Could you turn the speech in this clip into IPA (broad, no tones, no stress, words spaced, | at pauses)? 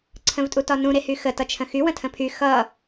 ǀʰə̃vtʼutɒnũ ɾehyxə tʌt͡ʃʰə̃xy wə̃tʰə̃pʰy xʌ